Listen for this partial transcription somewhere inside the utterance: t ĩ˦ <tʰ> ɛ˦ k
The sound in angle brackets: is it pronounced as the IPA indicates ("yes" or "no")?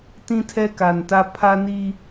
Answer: yes